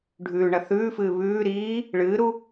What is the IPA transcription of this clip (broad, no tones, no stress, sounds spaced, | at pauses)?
ɖʱ ʉː ɳ ɐ θ ʉː f ɨː β ʉː ɾ iː | ɭ ɨː ɾ u